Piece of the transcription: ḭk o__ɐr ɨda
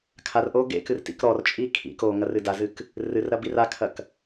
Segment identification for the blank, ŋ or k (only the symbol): ŋ